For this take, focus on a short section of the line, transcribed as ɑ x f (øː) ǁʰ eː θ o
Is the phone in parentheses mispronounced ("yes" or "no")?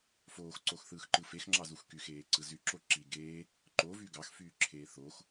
yes